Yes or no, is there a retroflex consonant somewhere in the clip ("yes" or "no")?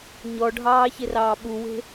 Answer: yes